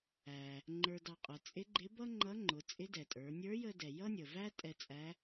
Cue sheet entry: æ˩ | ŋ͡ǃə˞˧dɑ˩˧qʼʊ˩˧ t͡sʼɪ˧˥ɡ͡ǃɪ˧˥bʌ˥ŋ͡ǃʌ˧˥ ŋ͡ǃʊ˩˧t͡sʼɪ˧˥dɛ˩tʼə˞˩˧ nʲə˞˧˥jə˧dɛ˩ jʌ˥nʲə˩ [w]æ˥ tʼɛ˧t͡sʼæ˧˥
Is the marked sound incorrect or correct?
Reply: incorrect